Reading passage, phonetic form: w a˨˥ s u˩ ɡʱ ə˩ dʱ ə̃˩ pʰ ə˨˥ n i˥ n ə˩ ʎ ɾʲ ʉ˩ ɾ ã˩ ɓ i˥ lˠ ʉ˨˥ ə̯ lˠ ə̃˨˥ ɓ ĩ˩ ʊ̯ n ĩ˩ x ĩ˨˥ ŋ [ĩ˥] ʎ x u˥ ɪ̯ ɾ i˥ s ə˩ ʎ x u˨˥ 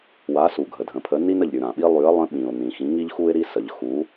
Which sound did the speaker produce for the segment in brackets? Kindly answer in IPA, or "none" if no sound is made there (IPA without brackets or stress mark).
i˥